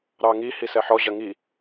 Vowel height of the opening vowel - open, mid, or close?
open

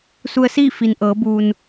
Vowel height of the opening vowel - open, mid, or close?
close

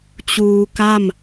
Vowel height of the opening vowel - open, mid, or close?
close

